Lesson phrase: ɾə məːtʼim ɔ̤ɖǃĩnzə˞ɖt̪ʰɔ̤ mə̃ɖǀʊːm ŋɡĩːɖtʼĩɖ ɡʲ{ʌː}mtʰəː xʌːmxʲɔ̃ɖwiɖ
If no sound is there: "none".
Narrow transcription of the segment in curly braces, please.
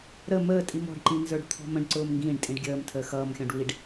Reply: əː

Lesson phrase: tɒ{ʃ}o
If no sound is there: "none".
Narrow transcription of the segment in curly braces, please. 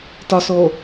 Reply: s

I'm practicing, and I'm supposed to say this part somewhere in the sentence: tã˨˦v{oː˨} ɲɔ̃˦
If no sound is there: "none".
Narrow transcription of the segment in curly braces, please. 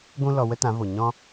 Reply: o˨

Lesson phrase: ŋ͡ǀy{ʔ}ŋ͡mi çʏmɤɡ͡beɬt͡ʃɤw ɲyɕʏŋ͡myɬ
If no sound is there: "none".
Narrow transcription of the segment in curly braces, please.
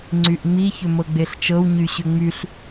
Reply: ʔ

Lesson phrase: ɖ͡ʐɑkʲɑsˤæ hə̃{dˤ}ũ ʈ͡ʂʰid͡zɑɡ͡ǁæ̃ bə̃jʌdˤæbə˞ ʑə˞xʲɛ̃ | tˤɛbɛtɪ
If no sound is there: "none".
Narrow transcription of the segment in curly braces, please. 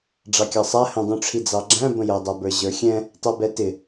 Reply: dˤ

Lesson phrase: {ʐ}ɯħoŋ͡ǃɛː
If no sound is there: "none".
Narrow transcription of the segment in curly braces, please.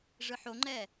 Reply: ʐ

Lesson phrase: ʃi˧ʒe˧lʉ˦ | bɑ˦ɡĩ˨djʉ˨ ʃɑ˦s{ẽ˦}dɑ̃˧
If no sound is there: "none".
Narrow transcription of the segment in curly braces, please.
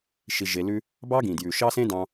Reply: ẽ˦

